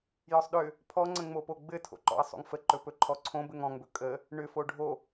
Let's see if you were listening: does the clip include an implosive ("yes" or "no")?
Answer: yes